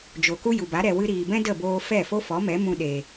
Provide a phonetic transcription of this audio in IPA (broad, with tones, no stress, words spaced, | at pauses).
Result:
d͡ʒo˨ku˦ ju˨ba˨˦ ɾɛ˨wɨ˧ɾiː˨bɛ̃˦ də˦˨boː˧ fɛ˦˨ fo˦fɔ˨˦mɛ˨˦ mũ˧ɗe˨